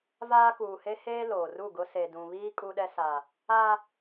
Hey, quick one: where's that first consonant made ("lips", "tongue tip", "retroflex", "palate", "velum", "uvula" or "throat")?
lips